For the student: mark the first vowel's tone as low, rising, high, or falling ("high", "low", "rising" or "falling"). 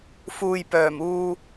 low